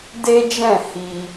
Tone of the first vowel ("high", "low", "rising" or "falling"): high